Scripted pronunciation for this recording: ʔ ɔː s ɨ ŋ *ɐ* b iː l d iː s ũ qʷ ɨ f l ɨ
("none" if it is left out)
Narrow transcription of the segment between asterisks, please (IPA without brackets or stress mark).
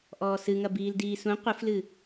ɐ